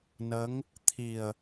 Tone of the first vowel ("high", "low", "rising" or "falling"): rising